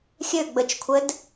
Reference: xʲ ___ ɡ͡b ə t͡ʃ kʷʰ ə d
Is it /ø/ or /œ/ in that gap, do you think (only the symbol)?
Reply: ø